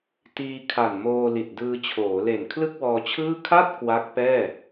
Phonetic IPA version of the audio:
t iː˧ kʰ a˨˩ n m oː˧ l i˨˩ t̚ d ɯː˧ t͡ɕʰ oː˩˦ l e˨˩ n kʰ l ɯ˥˩ k̚ w ɔː˧ t͡ɕʰ ɯː˥˩ kʰ a˥˩ t̚ k w a˦˥ k̚ p ɛː˥˩

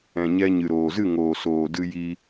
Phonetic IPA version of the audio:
ɛ̃˨ ɲ ɛ˧ ɲ ɨ˨ ɾ oː˨ z ɨ˦˨ ŋ oː˨ s oː˨ d ɨ˧ j i˧

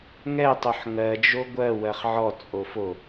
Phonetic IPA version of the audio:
ŋ ɛ tˤ o ħ ŋ ɜ d͡ʒ o ɡʷ ɜ w ɜ χ ʕ ɔ t͡sʼ o f o

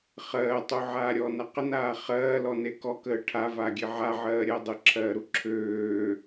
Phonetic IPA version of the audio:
χ ɜː tˤ u ʕ aː ɾʲ ɔː n a q ə n aː χ ɜː l ɔ n e k ɔ k əː ʈʰ a v aː ɡʲ e ʕ a ʕ ɜː ɾʲ ɜ dˤ ə ǁʰ ɜː ɾ u ǁʰ øː

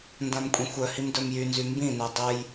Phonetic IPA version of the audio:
n d ã m kʷʼ ɛ̃ xʷ œ h i m d œ m j y n z y m b ĩ n ø dˤ ə j

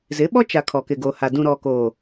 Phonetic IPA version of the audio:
z ɪ˨˦ ɓ ɔ˦ t͡ʃ a˨ kʰ ɔ˨ k ɪ˨ ɡ oː˨ h a˨ d ũ˨ ɾ ɔ˨ k oː˨

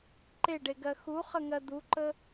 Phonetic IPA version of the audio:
ǃ e ɖ e ɡ ɜ x u χ ə ŋ ɜ d̪ u ǃ ə

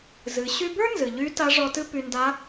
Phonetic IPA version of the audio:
z ɨ˩˧ ɕ y˥ b ə˞˥ n z ɨ˩ ʎ y˧˥ t a˧˥ ʐ ɔ˧ t ɨ˥ p y˧ n d a˧˥

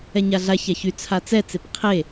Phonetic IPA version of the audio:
ɛ ɲ a ɮ a ç a ç y t͡sʰ a t͡s ɛ t͡s e p qʰ e

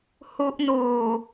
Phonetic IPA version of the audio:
h u˦˥ ʔ n uː˨˩

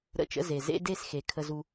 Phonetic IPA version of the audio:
ɾ ə̰˦˨ t͡ʃ ə̰˦ z e˨ z ḛ˦ d e˦˨ s x e˨ kʰ ə˦ z u˦

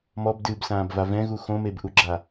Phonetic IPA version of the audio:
m ɔ b d ɨː b s ãː b v a v ɛ̃ ɣ u x õ m e b ʔ u ɡ͡ǁ a

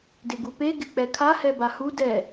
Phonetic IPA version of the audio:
d ɪ ɡ u p e ɡ ɪ k͡p ɛ kʰ a h ɛ b a h u d ɛ

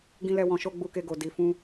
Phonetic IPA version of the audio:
ɡ ĩ˦ l ɛ˦ w ɔ̃˧ ʃ o˦ ɡ͡b u˧ k e˧ ɡ o˨ d i˧ f ũ˦

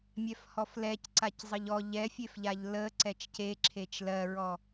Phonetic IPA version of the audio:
mʲ ɛ f h ɔ f l ɛ c ǀ a c zˤ ə ʎ ɔ ʎ ɛ fʲ e f ʎ a ʎ l ə ǀ ɛ t͡ʃ c e ǁʰ e t͡ʃ l ɜ ɹ ɔ

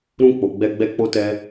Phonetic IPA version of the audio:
ɾ ũ˧ k͡p o˨ ɡ͡b ɛ˧ ɡ͡b ɛ˧ k͡p o˦ t ɛ˦

